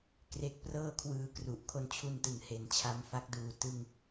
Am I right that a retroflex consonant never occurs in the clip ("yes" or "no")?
yes